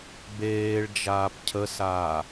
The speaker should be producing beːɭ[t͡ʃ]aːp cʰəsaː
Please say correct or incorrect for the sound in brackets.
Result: incorrect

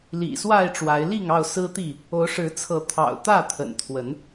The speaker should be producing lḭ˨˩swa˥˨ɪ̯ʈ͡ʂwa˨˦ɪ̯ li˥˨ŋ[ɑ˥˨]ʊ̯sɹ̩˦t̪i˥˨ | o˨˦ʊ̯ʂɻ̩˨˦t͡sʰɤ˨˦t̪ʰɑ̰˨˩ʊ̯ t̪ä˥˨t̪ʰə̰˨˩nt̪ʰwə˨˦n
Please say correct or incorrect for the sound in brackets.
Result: correct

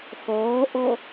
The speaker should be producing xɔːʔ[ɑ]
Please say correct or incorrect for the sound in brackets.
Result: incorrect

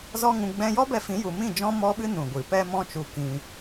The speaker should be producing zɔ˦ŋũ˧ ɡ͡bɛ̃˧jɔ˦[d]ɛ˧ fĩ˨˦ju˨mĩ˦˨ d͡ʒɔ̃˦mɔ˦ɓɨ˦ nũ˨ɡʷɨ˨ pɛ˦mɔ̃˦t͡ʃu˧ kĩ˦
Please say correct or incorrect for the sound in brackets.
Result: incorrect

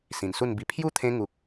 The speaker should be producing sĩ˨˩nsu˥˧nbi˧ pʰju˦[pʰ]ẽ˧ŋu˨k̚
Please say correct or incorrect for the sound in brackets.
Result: incorrect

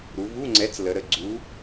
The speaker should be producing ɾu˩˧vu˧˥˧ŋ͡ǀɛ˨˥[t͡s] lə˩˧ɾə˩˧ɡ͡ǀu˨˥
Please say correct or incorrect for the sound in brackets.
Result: correct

